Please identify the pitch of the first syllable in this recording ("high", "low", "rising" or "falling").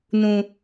low